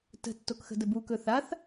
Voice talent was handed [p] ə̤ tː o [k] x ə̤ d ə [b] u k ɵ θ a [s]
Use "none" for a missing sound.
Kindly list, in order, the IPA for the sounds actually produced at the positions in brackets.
t, k, b, θ

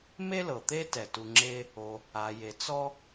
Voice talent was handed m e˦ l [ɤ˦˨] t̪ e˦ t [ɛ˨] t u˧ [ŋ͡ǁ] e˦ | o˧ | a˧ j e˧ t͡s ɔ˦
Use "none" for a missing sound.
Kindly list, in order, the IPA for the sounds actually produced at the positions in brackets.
ɤ˨, ɛ˨, ŋ͡ǁ

